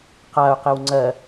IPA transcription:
q a ʊ̯ q e w ŋ͡ǀ ɜ

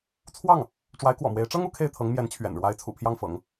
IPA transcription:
t͡sʰ w ɑ˥˩ ŋ | ʈ͡ʂ w a˧˥ ɪ̯ k w ɔ̰˨˩ m w e˧˥ ɪ̯ ʈ͡ʂ ɤ˥ ŋ u˧˥ kʰ e˥˩ ɪ̯ t̪ʰ ɤ˧˥ ŋ m j ɛ˧˥ n t͡ɕʰ ɥ ɛ̰˨˩ n ɻ w a˧˥ ɪ̯ t͡sʰ ṵ˨˩ pʰ j ɑ˥˩ ŋ f ɤ̰˨˩˦ ŋ

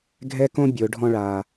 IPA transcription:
ɡʱ ɛ˥ k õ˥ bʲ ʊː˩˧ ɖʱ ɔ̃˧ ɭ aː˩

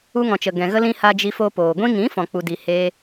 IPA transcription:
u˧ ŋ ɔ̃˨ t͡ʃ ə˨ ɡ ɛ̃˨ ɣ ə˧ l ĩ˧ h a˧ d͡ʒ i˧ f o˧ p oː˨ ɡʷ ĩ˧ ŋ ĩ˨˦ f ɔ̃˨ k͡p u˨ d i˨ h eː˧

